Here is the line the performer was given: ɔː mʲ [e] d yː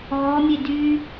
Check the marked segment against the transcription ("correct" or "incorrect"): correct